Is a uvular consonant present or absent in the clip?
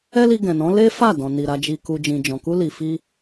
absent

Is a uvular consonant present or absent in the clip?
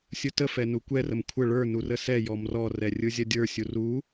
absent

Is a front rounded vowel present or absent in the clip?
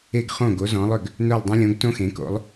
present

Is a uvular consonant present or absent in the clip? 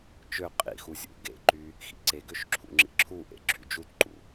present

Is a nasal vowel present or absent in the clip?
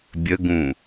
present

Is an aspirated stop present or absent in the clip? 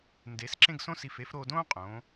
absent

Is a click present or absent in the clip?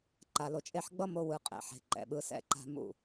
present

